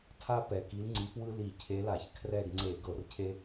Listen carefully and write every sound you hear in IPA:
tʰ a˦ p ɛ˨˩ k i˨˦ l ŋ͡ǀ i˨˦ p w ɯ˦ l i˧˩˧ cʰ e˨˦ l a˧˩˧ ç kʰ r ɛ˦˨ ɡ ŋ͡ǀ e˧˩˧ ɡ ɤ˧˩˧ r cʰ e˦

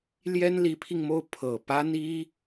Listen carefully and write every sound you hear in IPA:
l j ɛ˥ n l i˧˥ pʰ i˧ ŋ m o˥˩ ʊ̯ pʰ ɤ˨˩ p a˥ n i˥

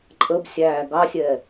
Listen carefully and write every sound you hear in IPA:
ǃʼ ə b sʲ æ ɡ ɑ sʲ ɛ

